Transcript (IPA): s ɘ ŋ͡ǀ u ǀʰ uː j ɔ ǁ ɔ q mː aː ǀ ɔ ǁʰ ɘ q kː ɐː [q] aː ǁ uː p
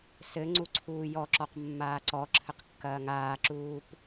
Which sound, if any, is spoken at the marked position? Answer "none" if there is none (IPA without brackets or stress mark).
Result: ŋ